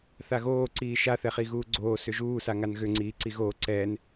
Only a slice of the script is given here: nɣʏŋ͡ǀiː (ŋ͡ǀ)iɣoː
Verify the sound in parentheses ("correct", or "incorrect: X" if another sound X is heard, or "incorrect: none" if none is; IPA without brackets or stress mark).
incorrect: ǀ